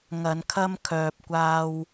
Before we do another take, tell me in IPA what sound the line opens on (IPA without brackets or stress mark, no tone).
ŋ